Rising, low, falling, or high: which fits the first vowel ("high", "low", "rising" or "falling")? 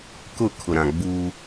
falling